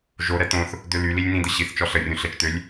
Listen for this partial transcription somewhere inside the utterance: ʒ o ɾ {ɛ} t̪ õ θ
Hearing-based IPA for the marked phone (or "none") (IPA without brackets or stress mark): ɛ